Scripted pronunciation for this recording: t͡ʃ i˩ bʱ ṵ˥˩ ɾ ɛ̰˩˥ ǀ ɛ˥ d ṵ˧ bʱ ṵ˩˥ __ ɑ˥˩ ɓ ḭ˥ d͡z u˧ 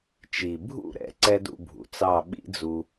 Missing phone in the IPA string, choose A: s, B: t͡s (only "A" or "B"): B